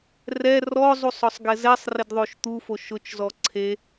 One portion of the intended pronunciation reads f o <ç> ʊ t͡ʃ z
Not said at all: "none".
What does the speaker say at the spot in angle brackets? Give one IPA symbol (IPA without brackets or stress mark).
ʃ